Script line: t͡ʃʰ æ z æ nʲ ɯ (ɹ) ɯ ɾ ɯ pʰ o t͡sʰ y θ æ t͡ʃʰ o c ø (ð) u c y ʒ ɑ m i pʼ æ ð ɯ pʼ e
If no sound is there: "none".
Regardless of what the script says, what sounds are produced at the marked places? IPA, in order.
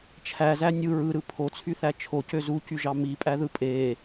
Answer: ɹ, z

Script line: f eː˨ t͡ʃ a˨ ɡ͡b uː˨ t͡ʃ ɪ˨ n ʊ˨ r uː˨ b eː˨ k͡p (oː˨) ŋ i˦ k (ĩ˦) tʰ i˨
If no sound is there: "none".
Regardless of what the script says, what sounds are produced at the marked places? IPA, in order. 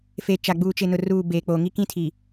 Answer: oː˨, ĩ˦

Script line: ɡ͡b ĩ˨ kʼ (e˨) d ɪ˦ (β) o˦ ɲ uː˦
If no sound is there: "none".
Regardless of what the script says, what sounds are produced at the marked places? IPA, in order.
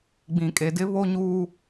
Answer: e˨, β

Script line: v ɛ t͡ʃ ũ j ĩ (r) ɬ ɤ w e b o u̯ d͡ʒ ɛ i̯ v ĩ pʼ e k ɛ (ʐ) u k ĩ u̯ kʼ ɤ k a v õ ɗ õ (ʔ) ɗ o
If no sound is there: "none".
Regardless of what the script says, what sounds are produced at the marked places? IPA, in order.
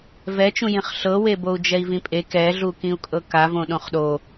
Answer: χ, ɮ, χ

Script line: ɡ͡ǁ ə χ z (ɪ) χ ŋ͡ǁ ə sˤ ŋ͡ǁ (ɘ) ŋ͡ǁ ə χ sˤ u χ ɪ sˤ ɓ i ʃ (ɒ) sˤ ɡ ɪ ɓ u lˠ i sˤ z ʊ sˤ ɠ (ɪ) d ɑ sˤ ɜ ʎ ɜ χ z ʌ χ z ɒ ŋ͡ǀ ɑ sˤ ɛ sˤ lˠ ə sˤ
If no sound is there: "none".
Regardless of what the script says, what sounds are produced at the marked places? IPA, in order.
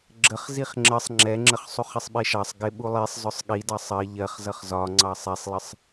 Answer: i, ɛ, ɑ, i

